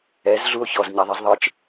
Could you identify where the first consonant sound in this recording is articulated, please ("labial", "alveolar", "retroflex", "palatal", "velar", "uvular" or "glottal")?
alveolar